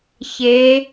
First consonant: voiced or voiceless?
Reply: voiceless